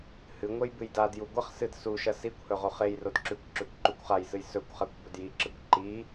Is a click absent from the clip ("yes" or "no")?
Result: no